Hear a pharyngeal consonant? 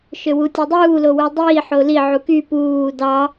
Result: yes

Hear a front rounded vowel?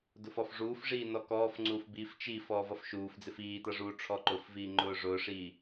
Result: no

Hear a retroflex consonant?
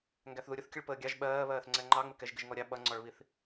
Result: yes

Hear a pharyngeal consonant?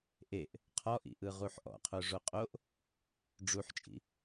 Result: yes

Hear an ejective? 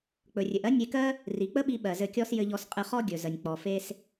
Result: yes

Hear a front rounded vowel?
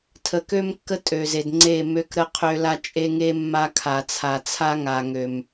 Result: yes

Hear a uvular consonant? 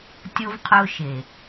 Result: yes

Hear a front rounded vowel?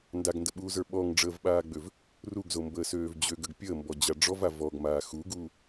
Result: yes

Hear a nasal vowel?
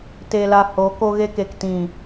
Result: yes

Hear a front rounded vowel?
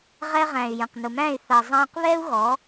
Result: yes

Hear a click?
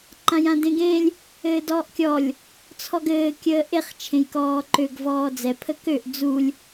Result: yes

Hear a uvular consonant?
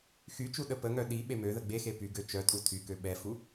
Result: no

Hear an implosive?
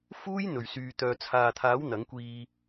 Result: no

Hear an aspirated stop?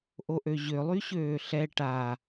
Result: no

